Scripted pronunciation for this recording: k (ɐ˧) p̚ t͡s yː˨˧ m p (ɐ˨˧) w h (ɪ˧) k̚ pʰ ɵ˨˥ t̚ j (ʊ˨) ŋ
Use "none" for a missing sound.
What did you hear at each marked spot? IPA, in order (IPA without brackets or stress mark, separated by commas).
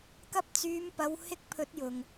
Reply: ɐ˧, ɐ˨˧, ɪ˧, ʊ˨